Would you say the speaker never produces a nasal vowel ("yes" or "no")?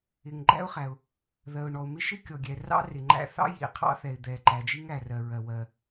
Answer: yes